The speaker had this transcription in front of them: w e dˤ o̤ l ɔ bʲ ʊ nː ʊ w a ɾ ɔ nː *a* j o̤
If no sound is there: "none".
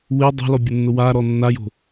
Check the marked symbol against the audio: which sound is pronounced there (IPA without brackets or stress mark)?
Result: a